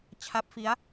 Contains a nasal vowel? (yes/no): no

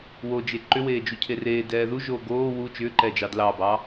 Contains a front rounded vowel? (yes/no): yes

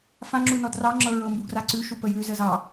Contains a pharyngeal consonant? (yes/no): no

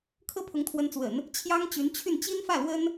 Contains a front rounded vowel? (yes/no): yes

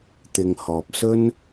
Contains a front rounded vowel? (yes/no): no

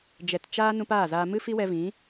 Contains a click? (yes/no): no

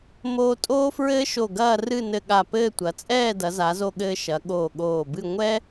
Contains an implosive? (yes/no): yes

